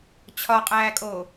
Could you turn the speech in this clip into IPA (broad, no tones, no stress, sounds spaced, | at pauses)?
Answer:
t͡ɕʰ ɒ qʼ æː kʼ oː